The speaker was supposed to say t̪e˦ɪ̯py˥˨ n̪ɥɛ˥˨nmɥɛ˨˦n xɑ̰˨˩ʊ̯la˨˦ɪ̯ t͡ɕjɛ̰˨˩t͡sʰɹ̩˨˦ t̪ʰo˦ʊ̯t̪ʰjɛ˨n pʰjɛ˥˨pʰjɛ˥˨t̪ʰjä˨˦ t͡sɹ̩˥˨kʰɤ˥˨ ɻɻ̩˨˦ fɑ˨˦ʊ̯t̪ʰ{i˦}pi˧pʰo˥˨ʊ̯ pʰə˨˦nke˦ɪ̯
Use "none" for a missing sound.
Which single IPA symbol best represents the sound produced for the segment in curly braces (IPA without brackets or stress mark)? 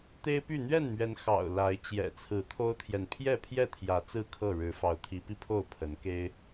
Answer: i˨˦